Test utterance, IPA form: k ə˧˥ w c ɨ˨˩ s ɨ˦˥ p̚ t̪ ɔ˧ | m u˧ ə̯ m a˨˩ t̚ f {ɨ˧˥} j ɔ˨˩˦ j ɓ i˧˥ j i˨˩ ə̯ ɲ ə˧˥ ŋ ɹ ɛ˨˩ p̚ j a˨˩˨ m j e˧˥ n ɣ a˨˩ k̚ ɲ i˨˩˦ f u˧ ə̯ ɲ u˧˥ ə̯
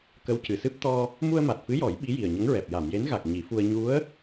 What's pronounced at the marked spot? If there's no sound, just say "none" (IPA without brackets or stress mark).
ɨ˧˥